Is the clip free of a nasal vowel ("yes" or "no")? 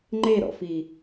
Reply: yes